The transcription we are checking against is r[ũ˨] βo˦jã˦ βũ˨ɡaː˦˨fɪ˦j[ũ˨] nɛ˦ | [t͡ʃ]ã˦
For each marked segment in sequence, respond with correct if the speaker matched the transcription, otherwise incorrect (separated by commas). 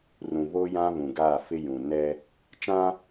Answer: correct, correct, correct